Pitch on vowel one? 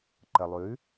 low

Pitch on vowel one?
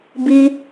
high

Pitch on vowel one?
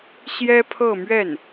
high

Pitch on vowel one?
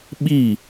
falling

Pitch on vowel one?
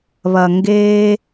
low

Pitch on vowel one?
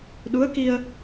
rising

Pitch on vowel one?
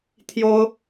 high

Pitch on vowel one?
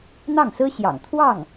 falling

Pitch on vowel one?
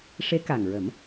rising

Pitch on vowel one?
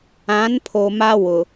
rising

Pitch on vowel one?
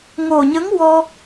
low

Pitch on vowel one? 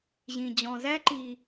low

